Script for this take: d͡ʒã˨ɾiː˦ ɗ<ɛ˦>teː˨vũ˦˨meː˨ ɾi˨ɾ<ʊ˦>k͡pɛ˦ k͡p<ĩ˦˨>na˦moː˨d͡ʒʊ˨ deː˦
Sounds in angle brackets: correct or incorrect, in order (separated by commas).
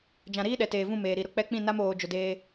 incorrect, correct, correct